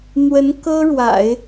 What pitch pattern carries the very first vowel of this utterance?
rising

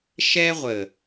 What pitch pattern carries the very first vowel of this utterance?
high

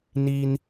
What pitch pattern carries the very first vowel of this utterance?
high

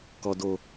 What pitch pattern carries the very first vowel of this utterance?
low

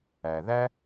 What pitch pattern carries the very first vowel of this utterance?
low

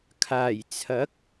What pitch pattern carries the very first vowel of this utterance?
low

